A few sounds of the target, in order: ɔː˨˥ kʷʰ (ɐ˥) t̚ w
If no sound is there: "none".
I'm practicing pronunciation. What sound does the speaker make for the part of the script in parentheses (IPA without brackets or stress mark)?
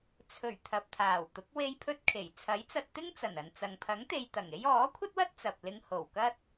ɐ˥